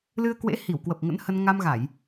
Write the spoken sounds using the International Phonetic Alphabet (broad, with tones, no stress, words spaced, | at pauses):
lɨ˧ə̯kwḛ˧˥hi˧˩w kwə˨˩p̚ŋə̰˧˥nhə˧n ŋa˧mɣa˧˩˨j